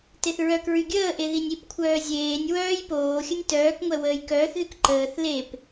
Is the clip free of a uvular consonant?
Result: yes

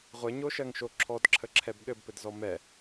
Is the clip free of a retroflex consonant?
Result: yes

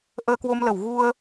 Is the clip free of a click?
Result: yes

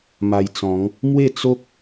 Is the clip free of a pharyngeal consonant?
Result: yes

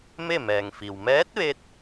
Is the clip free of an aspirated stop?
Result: yes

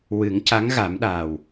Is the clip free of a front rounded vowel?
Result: yes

